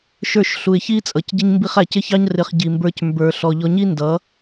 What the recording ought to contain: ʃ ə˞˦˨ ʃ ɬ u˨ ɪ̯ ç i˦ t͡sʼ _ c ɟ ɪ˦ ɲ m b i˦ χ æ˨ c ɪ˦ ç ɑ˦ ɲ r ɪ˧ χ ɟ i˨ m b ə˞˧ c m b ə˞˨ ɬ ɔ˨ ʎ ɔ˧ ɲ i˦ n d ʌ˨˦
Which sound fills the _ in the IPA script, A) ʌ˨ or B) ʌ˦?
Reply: A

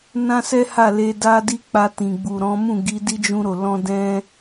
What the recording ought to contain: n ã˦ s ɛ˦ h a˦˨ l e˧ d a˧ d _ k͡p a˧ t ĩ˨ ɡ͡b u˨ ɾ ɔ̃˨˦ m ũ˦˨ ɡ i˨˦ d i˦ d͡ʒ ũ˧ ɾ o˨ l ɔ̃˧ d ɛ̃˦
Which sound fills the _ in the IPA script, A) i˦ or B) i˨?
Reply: A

